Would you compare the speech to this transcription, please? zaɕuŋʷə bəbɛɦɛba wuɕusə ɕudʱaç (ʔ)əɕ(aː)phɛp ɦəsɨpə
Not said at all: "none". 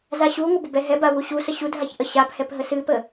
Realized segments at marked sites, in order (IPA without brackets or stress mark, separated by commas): ʔ, a